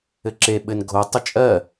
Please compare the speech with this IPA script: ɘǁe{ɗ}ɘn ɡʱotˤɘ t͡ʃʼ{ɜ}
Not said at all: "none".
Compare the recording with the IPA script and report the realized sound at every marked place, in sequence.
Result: ɓ, ɜ

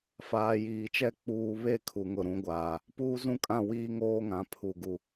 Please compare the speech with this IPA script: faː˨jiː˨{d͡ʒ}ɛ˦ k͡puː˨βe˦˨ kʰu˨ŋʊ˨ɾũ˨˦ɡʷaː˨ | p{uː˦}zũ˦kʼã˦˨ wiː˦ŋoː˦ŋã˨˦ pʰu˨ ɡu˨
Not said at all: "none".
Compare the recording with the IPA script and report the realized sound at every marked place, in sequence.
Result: t͡ʃ, uː˦

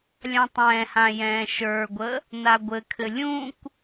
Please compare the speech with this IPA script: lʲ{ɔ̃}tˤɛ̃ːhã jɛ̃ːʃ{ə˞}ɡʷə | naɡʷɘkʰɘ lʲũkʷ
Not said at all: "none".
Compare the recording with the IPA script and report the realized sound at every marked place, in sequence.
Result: ɑ̃, ə˞

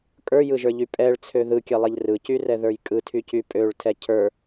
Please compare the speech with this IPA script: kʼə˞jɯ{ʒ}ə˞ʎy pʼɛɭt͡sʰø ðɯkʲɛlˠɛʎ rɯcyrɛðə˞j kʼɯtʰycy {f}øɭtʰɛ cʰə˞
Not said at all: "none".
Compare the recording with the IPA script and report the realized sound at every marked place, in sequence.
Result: ʒ, pʼ

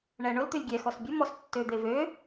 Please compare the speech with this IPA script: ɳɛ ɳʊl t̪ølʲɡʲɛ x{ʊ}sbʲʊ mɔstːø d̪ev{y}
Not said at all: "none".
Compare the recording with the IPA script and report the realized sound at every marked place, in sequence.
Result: ɔ, ø

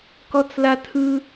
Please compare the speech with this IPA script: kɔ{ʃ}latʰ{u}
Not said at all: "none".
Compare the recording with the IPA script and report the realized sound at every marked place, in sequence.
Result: t͡s, ɯ

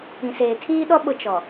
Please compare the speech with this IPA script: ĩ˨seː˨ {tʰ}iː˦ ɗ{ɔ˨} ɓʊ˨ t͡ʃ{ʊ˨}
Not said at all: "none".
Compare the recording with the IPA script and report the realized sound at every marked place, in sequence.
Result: tʰ, ɔ˦, ɔ˨

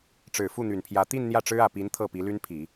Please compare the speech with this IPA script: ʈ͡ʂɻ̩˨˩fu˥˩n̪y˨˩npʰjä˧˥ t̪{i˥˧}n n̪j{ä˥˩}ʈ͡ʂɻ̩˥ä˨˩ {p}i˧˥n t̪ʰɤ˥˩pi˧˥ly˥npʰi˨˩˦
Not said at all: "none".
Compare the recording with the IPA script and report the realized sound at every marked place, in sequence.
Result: i˥˧, ä˥˩, p

